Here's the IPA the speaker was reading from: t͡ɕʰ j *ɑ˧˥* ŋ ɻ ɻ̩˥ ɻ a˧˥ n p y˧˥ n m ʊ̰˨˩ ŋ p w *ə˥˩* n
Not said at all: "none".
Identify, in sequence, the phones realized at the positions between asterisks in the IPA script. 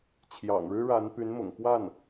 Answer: ɑ̰˨˩, a˥˩

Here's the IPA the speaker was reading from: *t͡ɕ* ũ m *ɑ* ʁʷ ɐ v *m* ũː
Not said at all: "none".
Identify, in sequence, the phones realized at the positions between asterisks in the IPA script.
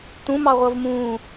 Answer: t, ɑ, m

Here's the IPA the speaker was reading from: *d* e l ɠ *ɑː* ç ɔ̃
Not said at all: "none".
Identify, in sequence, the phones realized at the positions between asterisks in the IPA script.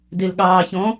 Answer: d, ɑː

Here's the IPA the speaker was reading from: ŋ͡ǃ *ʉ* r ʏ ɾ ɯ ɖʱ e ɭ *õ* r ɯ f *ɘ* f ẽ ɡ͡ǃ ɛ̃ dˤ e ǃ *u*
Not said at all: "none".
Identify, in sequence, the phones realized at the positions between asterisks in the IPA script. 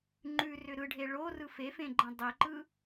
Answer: ʉ, o, e, ɯ

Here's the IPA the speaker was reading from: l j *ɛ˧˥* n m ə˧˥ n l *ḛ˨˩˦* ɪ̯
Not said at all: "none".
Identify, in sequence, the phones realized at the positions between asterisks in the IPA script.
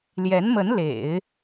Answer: ɛ˧˥, ḛ˨˩˦

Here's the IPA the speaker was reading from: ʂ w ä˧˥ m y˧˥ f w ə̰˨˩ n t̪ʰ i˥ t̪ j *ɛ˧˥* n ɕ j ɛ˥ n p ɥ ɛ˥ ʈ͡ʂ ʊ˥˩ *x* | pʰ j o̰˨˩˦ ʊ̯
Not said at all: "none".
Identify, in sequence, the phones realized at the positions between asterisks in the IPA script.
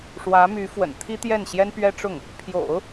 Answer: ɛ˥˩, ŋ

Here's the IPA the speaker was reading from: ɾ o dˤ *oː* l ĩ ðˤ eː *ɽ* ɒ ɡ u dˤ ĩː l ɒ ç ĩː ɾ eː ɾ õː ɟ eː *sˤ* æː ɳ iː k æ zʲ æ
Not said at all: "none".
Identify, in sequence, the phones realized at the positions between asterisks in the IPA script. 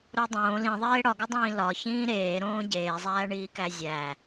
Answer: õː, ɽ, zˤ

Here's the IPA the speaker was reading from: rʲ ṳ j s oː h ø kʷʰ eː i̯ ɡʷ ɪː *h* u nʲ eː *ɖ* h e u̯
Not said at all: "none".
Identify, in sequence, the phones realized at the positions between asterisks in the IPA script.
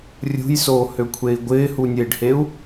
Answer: h, ɖ

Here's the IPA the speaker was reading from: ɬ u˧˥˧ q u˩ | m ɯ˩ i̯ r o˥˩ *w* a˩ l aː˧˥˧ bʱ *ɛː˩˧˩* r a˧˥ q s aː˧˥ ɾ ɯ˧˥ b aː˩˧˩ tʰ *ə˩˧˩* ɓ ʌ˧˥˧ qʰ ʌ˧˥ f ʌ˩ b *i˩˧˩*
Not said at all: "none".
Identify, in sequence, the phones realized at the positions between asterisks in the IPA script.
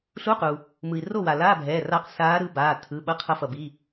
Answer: w, ɛː˩˧˩, ɯ˩˧˩, i˩˧˩

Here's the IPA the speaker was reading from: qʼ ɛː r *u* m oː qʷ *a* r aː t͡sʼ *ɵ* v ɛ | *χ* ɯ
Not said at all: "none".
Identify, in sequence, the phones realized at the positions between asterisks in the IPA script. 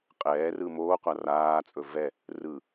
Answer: ɯ, a, ɵ, r

